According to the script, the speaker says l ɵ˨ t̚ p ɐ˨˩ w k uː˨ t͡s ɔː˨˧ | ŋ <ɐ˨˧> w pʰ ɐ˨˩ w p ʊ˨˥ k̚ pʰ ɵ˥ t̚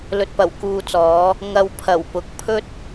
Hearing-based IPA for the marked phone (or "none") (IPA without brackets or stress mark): ɐ˨